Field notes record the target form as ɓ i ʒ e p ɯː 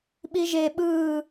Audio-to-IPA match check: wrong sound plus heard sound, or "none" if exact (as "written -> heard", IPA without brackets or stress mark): p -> ɓ